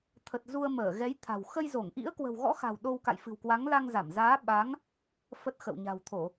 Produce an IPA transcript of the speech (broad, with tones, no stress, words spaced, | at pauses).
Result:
t̪ʰə˨˩t̚zu˧ə̯ məː˧˩ɣɛ˨˦jt̪ʰa̤˨˩w xə˧jzo˧˩ŋ ʔḭ˧˥ə̯kwə̤˨˩wɣɔ̰˧˥xa̤˨˩w ɗo˧wka̰˧˨j fɨ̤˨˩wkwa˨˦ŋ la˧ŋza˧˩mzaː˨˦ ɓa˨˦ŋ | fə˦˥t̚xə̰˧˨w ɲa̤˨˩wt̪ʰo˧˩˨